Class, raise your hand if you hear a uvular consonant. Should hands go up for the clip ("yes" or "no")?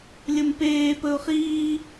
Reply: yes